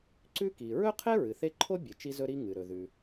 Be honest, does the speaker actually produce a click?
yes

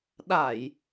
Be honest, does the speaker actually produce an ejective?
no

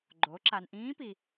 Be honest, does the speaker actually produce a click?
yes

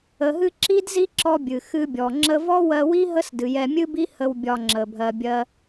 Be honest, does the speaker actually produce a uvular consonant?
no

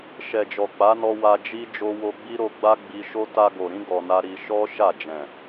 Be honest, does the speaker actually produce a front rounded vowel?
no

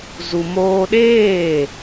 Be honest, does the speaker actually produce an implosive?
yes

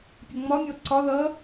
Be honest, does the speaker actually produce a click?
yes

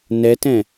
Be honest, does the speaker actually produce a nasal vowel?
yes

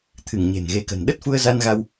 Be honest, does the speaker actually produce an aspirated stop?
yes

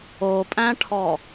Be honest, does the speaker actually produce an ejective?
yes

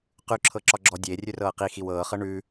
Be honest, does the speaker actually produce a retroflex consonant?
yes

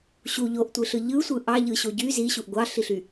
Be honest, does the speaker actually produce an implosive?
no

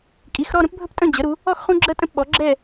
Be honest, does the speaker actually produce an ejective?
yes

